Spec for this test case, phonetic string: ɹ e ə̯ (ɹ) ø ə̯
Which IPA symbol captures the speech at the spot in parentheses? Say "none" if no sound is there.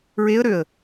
ɾ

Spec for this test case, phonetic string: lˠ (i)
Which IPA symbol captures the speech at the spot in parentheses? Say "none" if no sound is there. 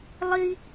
i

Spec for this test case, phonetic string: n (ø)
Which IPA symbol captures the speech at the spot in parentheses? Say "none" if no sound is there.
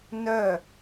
œ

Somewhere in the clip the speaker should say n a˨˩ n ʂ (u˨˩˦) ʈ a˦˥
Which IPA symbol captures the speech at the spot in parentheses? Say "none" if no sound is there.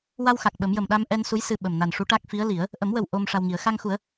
u˧˥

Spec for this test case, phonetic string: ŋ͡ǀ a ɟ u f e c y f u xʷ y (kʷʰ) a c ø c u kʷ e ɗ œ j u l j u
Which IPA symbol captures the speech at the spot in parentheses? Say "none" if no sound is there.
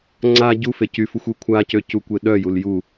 kʷʰ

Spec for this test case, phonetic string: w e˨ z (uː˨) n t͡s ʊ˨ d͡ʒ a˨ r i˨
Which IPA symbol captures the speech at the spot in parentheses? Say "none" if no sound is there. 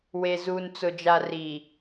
uː˨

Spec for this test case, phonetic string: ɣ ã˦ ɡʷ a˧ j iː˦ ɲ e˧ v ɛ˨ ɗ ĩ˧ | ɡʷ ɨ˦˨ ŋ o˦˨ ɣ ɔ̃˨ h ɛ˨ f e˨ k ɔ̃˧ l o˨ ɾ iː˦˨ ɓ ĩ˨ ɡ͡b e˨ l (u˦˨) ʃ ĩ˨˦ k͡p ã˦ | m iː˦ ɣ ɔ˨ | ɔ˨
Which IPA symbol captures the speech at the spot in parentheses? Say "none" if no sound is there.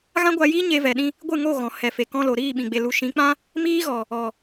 u˨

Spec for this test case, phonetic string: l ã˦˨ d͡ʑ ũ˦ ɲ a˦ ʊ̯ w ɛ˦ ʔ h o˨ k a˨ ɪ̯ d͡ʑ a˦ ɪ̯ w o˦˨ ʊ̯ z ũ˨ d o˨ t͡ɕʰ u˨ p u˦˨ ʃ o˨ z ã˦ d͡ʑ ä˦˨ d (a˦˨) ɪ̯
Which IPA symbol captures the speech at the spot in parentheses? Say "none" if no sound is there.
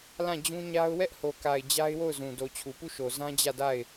a˦˨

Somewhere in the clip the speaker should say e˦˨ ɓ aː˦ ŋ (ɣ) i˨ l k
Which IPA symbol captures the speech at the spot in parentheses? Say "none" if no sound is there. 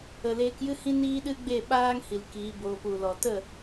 h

